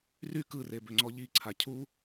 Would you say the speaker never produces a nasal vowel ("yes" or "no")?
yes